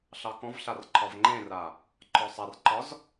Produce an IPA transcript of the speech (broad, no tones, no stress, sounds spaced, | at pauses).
ɬ ɑ k ɔ̃ v ɬ a r ǃʰ ɒ v ŋ͡ǃ ẽ r a | ǃʰ ɔ sˤ a r ǃ ɒ z